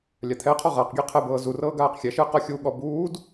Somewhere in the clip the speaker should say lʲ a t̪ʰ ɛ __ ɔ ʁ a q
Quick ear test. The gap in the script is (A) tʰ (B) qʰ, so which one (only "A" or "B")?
B